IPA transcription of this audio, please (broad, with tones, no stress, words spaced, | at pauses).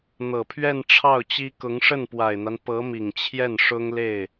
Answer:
n̪ɤ˨˩pʰɥɛ˥˧n ʈ͡ʂʰɑ˥˩ʊ̯t͡ɕi˥ kʊ˧˥ŋʂə˥˩npwa˨˩ɪ̯n̪a˦n pɤ˧˥mi˨˩ŋ t͡ɕʰjɛ˥˩nʂʊ˥ŋ le˥˩ɪ̯